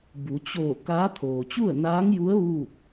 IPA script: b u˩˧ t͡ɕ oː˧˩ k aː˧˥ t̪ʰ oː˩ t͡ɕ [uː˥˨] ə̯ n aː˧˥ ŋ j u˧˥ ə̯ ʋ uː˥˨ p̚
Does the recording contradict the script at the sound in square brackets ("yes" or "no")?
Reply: yes